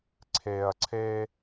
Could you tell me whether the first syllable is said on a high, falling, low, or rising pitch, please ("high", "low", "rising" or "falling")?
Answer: low